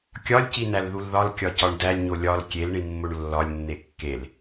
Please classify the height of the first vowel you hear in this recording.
low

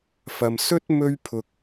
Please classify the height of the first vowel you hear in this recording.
low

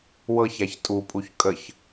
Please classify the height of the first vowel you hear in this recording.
mid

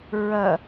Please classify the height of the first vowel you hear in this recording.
low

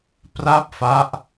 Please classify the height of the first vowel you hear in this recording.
low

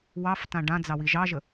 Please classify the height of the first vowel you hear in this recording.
low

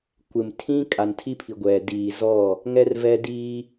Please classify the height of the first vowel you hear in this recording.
high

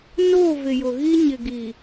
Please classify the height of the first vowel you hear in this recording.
mid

